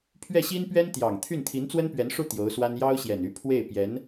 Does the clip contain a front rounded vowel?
yes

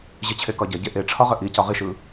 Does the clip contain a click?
no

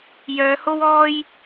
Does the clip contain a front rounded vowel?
yes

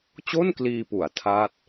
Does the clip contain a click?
no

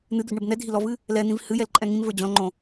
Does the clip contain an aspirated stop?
no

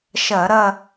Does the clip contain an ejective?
no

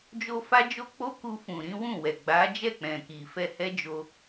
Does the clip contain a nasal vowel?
yes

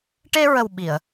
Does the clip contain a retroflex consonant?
yes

